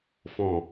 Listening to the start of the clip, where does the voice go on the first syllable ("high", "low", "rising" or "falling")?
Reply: low